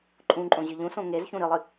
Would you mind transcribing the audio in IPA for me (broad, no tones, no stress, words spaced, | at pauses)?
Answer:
ǃʼũǃʼõ ʑɨʎũsõ ŋezçũ ɾɨlˠɨ